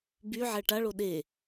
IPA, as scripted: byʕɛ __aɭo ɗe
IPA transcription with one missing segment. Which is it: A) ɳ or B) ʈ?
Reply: B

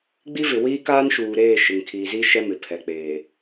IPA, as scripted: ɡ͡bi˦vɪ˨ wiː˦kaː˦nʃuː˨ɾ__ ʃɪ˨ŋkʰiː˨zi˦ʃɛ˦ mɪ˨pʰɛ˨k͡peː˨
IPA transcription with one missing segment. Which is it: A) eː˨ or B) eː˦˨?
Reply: B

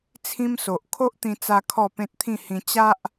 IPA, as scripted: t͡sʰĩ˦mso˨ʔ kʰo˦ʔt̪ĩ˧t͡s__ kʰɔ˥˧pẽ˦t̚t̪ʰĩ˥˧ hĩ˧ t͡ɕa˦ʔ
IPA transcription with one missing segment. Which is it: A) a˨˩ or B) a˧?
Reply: B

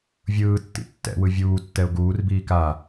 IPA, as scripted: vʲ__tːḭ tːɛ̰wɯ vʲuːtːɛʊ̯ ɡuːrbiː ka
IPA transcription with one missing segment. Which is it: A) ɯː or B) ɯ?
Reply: A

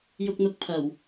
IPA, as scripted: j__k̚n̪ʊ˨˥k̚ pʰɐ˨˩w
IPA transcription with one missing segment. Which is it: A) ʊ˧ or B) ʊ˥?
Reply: A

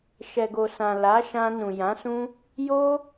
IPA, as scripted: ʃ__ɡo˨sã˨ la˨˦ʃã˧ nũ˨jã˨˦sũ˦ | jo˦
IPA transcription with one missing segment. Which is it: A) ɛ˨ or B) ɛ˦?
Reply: A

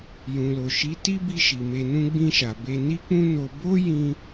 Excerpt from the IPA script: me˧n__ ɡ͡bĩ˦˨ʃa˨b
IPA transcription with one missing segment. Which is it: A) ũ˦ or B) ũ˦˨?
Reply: A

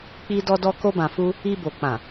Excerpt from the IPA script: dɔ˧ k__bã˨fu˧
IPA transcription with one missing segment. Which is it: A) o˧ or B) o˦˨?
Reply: A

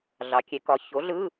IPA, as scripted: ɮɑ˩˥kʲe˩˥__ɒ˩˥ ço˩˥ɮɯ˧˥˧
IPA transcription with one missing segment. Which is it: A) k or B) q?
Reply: A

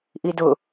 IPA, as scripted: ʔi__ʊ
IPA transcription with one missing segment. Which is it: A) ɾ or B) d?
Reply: B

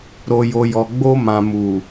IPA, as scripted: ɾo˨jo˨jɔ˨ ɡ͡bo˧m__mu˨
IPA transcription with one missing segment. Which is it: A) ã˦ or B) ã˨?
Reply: B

